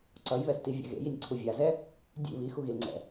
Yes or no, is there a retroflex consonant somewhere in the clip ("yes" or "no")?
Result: no